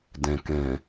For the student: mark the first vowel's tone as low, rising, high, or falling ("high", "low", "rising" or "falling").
low